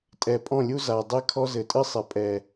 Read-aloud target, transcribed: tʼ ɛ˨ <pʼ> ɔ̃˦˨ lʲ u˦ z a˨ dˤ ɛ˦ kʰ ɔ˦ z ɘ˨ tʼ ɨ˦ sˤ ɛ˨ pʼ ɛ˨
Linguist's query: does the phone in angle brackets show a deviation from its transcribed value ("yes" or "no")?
no